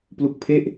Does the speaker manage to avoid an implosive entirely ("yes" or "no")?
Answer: yes